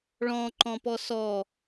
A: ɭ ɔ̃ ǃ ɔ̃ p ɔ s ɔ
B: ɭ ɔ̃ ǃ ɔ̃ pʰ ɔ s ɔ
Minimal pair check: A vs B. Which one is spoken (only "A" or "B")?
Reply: A